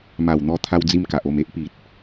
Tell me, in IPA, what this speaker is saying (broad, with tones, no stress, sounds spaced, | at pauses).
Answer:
m a˨˩ w n̪ ɔ˧ t̪ʰ a˦ w d͡z i˦ m k a˨ ʔ o˥˧ m e˦ ʔ p i˨ t̚